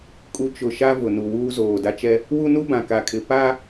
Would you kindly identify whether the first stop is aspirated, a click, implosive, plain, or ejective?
ejective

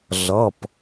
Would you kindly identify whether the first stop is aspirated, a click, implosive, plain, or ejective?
plain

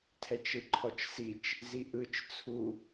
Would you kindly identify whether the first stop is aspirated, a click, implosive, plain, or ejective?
aspirated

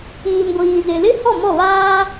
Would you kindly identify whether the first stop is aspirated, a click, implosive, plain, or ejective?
plain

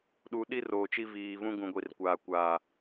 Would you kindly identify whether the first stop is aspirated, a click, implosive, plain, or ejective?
implosive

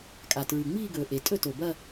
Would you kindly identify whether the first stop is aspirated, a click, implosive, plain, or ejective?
ejective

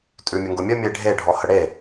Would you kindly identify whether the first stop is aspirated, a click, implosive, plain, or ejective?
ejective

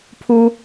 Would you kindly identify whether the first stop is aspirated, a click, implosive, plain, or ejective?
aspirated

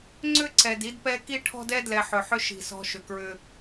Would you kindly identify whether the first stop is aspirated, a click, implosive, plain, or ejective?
click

